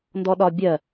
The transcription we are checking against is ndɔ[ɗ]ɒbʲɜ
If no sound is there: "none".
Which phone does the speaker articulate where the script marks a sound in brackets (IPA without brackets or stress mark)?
ɗ